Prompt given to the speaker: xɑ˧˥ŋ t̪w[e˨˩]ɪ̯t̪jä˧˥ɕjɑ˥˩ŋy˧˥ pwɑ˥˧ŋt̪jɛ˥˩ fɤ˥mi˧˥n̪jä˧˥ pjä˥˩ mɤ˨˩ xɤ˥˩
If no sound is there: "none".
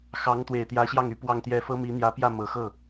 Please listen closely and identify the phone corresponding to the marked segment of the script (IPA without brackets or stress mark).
e˨˩